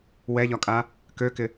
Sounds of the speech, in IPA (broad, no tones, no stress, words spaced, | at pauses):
wɛʎɒkʼa | køkɪ